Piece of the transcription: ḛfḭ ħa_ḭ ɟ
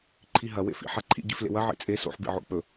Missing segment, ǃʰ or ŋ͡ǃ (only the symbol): ǃʰ